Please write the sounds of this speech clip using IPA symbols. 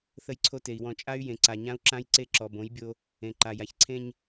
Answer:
θ ə˦ j ǀʰ o˦ t e˨ i̯ w ɔ̃˨ t͡ʃʼ a˦ y̯ j ẽ˨ ǀ a˨ ɲ ã˦ u̯ ǁ ã˦ j ǀ e˦ ǁ ɔ˨ b õ˨˦ j bʲ o˦ | ẽ˨ ǃ a˨ j a˨ ç ǀʰ ẽ˦ ɲ

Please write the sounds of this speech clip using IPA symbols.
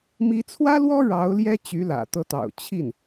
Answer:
m i˧˥ t͡sʰ w ä˥ l w ɔ˥ ɻ ɑ˧˥ ʊ̯ l j ɛ˥ t͡ɕ y˧˥ l ä̰˨˩ t̪ ɤ˧˥ t̪ ɑ̰˨˩ ʊ̯ t͡ɕʰ i˥˩ n

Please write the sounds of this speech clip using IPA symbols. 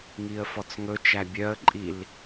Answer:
ŋ i ə̯ f ɔ t͡s ŋ ɵ t͡ʃ æ bʲ œ ə̯ ǃʼ i l

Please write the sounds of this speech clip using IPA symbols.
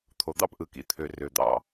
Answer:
t̪ʰ o˩ d̪ ɑ̰˥ p ʔ ɯ˩ k ḭ˩ t̪ʰ ø˩ r ø˩ d̪ ɑ̰˩

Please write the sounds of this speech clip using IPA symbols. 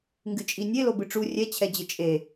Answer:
ŋ ɡ ɨ t͡ʃʼ i nʲ e l o b ɨ ʈ͡ʂ u rʲ ɛ t͡ɕʰ ɛ d͡ʑ ɘ t͡ʃʼ e

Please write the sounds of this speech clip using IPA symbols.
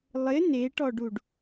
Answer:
lˠ ɪ n e ʈ ɔ ɖ u ɖ

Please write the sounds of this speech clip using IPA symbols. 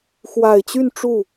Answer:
x w a˨˩ ɪ̯ t͡ɕ y˥˧ n ʈ͡ʂ u˥˩

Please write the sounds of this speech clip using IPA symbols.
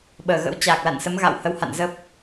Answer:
ɓ əː˧˩ ɣ ə̰˧˥ w t͡ɕ aː˨˩ k̚ l a̰˧˨ n s ə˨˦ m ɣ a̰˧˨ w h ə˨˦ w h a̰˧˨ n z ə˦˥ p̚

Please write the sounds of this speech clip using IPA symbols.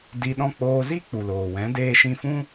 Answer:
d i˧ ɗ ɔ̃˦ k͡p oː˧ z i˦ k͡p u˨ l oː˨ w ɛ̃˨˦ d eː˧ ʃ ĩ˧ f ũ˦

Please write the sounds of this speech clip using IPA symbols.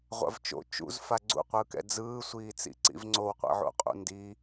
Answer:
ʁʷ a̰ v t͡ʃ o̰ t͡ʃ ṵ z f a ɡ͡ǀ ṵ qʷ ɯː k ɛ̰ d͡z ɯː sʷ iː t͡s ḭ ǀ ḭ v ŋ͡ǀ o w qʷ ɛ̰ ʕ o̰ qʼ ṵ n d i

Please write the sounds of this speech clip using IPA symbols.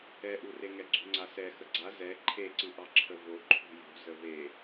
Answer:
ɛ ʔ u r e ŋ ɛ ɡ͡ǀ ṳ ŋ͡ǀ a s ɛ x ə ɡ͡ǀ a z ɛ ǃʰ e ǀ ɨ ʔ ɑ ǁʰ ə v o ǃʰ ṳ j ṳ z ə v e

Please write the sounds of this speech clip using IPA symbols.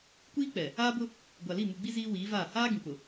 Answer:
kʷ iː˦ k͡p ɛ˨ | aː˦ b ʊ˦ | ɡʷ a˨ l i˦˨ m u˨ ɡ͡b i˦ z iː˦ w iː˨˦ v aː˦˨ h aː˦ ɡ ĩ˨ k͡p ʊ˨

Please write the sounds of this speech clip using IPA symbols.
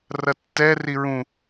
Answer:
r ɐ tː ɛ r i ɹ ũ

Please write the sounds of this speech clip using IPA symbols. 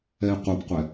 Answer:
ɛ i̯ qʷ ɤ p qʷ ɛ

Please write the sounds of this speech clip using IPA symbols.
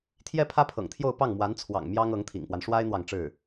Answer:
t̪ʰ j ɛ˥ pʰ ä˥ pʰ ɤ̰˨˩ ŋ t̪ʰ j o˥˧ ʊ̯ p ɑ˥˩ ŋ m w a˧˥ n t͡sʰ w ɑ̰˨˩ ŋ m j ɑ˥ ŋ ɤ˧˥ ŋ t̪ʰ ḭ˨˩ ŋ p w a˦ n ʂ w a˥ ɪ̯ n̪ w ɑ˨ ŋ ʈ͡ʂ ɻ̩˥˩

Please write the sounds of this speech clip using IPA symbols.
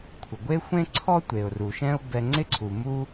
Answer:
kʷʰ ə˩ ɡʷ e˥ xʷ ẽ˥ ǀʰ ɔ˥ tʷ e˩ ʊ̯ r u˩ ʃ ɛ̃˦ ʊ̯ b ɛ˨ ŋ͡ǀ ɪ˦ ǀʰ u˩ m u˥

